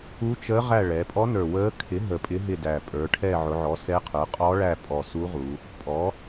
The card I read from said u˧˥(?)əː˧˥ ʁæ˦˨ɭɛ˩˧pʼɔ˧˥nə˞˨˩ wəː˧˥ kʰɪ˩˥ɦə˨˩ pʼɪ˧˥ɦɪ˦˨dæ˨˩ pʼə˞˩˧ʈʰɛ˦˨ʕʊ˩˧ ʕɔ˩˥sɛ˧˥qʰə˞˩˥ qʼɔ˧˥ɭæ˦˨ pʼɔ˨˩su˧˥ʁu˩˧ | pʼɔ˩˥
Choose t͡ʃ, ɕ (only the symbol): t͡ʃ